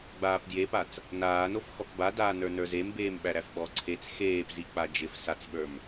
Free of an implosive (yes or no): no